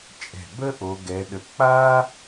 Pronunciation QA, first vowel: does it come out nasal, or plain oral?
oral